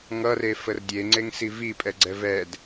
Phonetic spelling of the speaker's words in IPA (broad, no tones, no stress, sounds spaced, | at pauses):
ŋ ʌ r e f ə r dʲ e ŋ͡ǀ e ŋ s i v i pʼ ɛ ɡ͡ǀ ɛ v ɛ d